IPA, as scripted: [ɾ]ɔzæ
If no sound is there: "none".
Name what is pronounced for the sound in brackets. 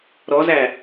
ɾ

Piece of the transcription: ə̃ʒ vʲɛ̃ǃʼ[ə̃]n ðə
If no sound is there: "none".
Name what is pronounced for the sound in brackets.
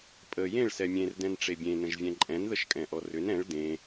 ɛ̃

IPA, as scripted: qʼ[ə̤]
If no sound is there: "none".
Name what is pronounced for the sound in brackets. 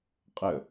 ə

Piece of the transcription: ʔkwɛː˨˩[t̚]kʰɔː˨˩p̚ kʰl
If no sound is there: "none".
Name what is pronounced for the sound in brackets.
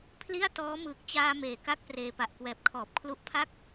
p̚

